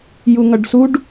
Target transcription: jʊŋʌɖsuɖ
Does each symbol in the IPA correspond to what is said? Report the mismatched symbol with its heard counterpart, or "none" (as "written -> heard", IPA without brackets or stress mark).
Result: ʊ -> u